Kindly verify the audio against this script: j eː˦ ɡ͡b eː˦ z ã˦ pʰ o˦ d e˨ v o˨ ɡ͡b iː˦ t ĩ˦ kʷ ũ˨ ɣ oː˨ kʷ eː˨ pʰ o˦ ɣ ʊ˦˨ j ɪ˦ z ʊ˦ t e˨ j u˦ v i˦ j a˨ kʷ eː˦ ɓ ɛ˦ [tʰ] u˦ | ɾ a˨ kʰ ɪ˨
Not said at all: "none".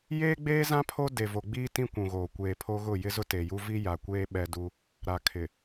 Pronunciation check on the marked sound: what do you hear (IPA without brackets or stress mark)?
d